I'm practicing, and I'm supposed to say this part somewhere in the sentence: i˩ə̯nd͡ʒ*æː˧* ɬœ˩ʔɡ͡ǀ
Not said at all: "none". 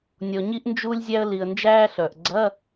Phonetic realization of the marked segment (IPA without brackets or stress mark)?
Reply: æː˧